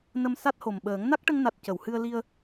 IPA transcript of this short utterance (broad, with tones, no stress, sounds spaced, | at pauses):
n ə˧ m s a˦˥ t̚ h o˨˩ m ɓ əː˨˩˦ ŋ n a˦˥ k̚ ʈ ə˧ ŋ n a˨˩ t̚ c ə˨˩˨ w h ɨ˧ ə̯ l i˧ ə̯